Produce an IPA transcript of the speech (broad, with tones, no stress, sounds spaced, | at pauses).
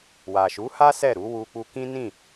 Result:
w a˨ ʃ u˨˦ h a˦ s ɛ˦˨ ɾ u˨˦ w u˧ k͡p u˧ k ĩ˦ n ĩ˦˨